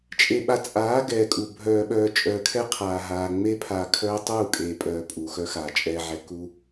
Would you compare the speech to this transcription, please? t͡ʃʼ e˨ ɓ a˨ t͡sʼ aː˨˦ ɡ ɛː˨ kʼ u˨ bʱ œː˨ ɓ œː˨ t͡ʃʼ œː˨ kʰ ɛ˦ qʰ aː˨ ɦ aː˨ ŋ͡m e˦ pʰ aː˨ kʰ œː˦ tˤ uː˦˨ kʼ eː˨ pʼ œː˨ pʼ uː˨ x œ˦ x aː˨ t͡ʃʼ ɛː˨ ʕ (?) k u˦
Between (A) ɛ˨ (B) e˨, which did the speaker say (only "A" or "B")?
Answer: A